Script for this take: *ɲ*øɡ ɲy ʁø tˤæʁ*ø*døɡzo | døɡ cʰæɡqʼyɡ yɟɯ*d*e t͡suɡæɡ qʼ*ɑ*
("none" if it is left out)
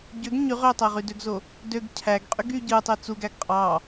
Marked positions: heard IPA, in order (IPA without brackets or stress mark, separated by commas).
ɟ, y, tˤ, ɑ